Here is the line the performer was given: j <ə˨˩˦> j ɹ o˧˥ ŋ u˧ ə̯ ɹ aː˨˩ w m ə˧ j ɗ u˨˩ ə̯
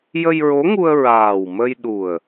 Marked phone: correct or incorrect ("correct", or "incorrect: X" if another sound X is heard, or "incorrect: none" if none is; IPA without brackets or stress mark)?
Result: incorrect: ə˧